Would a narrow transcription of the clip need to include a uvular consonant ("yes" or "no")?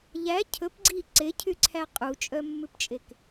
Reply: yes